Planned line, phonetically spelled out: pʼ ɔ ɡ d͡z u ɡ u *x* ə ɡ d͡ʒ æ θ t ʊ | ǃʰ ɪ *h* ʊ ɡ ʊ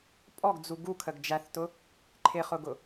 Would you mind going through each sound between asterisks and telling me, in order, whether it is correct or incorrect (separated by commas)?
incorrect, incorrect